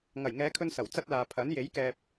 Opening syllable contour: low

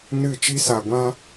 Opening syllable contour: falling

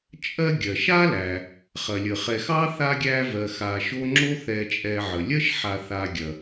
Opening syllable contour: high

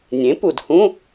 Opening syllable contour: rising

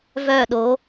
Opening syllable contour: falling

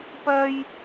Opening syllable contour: low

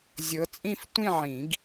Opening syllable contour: rising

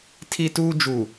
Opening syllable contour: high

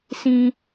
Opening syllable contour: high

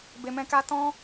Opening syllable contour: low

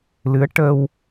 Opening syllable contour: rising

